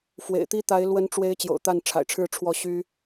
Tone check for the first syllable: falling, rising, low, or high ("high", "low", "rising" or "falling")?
low